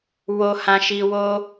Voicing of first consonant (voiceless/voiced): voiced